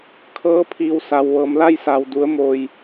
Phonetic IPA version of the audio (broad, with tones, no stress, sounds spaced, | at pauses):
kʰ ɤː˧˥ pʰ iː˧˩ w s a˩ w ʋ ɤː˩˧ m l a˧ j s a˩ w d u˩˧ ə̯ m oː˩ j